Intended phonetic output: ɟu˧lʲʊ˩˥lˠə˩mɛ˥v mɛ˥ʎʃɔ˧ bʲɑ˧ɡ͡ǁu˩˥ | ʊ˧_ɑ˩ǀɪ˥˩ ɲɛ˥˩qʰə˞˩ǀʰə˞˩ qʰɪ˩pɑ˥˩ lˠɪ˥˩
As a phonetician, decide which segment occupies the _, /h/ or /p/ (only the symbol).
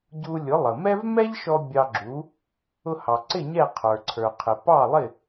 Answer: h